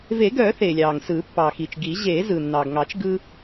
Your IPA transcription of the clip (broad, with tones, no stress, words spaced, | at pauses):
ve˨˩˦ɡœː˨˩˦ θeː˩lʲɑː˩ŋsɯː˨˩˦ pːɑː˩xiː˩t͡ʃ ɡi˨˩˦ ʑeː˨˩˦ zɯ˩nːɑː˩ɡŋɑ˨˩˦t͡ʃ ɡɯː˦